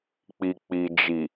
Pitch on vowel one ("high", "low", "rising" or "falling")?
low